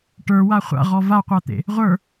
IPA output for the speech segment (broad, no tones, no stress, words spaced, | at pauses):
ʈə˞wa χʷa̰ʁɔ vaqʷat̪ḛ | ʁʷə˞